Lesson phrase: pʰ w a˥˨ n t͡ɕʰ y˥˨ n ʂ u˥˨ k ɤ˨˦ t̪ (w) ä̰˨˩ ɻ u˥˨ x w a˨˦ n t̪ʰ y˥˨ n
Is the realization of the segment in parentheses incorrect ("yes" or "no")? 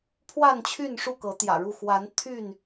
yes